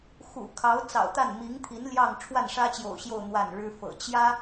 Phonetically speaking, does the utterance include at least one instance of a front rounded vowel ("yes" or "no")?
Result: no